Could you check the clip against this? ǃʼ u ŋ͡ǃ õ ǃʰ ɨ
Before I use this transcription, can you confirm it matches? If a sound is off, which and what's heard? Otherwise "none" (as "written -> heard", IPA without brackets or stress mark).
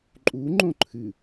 none